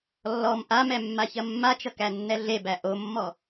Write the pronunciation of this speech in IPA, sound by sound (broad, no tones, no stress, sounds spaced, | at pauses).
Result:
lː ɔ m ʔ a m ɛ mː a ç ɐ mː a t͡ʃ ʌ k æ nː ɛ ɮ e b æ ʔ o mː ɔ